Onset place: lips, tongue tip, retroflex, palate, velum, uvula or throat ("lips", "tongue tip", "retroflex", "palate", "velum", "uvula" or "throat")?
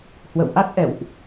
throat